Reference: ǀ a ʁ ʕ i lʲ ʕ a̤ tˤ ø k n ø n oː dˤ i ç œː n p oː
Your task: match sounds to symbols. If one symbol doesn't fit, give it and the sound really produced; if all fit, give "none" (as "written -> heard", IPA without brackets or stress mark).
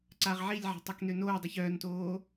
p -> t